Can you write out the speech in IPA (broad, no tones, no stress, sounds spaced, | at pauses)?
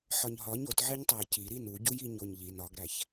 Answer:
ħ ɒ ɲ ɦ ɒ ɲ o t ʕ e ɲ tˤ æ j c i ɾ i n u ɟ u j i ɲ o ɲ ʎ i n ɒ ɡ ɾ æ ç